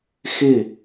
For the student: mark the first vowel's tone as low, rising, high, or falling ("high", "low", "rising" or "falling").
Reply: falling